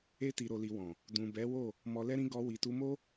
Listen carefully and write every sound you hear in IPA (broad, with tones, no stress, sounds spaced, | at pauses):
e˧ t i˨ ɾ o˨ l i˨ w ɔ̃˨ | d ũ˨ b ɛ˨˦ w o˦˨ | m ɔ˧ l ɛ˦ ɾ ĩ˦ ɡ ɔ˧ w i˨ t u˧ m o˦